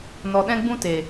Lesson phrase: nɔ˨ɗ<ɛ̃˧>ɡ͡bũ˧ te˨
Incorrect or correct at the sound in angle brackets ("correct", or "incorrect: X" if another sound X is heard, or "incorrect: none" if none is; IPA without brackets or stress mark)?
correct